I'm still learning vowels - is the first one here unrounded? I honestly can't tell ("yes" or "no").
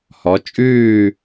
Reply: no